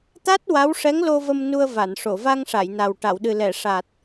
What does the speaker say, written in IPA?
t̪ a˦˥ t̚ w a˧˥ w ʂ ɛ˧˥ ŋ l o˧ v ə˧ m n u˧ ə̯ v a˨˩˨ n ʂ o˨˩˨ v a˧ ŋ ʂ a˨˩˨ j n a˨˩ w ʈ a˨˩˨ w ɗ ɨ˨˩ l ɛ˨˩˨ ʂ a˨˩ t̚

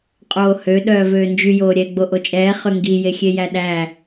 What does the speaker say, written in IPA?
qʼ oː h ø ɗ œː v øː n d͡ʒ y j oː ɾʲ ɛ ɡ͡b o ʔ o t͡ʃʼ ɛː χ ø ŋ ɡ i j e xʲ e j æ ɗ æ

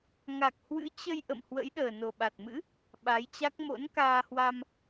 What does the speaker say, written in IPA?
ŋ a˨˩ k̚ h w ɨ̰˧˥ t͡ɕ ə˧ j ʔ ə̰˧˨ m h w ə̰˧˥ j ɗ əː˨˩ n o˨˩ ɓ a˨˩ t̚ m ɨ̰˧˥ | ɓ a˨˦ j t͡ɕ a˦˥ k̚ m o̰˧˥ n k aː˧ h w a˧ m

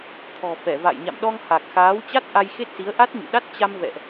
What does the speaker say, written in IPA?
t̪ʰ ɔ̤˨˩ f ɛ˧˩ v a̰˧˨ j ɲ a̰˧˨ m ɗ ɔ˧ ŋ h a˨˩ k̚ x aː˨˦ w t͡ɕ a˦˥ t̚ ʔ a˧ j x e˦˥ t̚ s i˨˦ ə̯ ʔ a˦˥ t̚ ɲ ṵ˧˨ ɗ a˦˥ t̚ t͡ɕ a˧ m v ɛ̰˧˨ ʔ

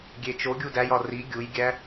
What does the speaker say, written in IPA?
ɡʲ e t͡ʃ o ɡʲ u d æ j ɒ r i ɡʲ u j ɡʲ æ

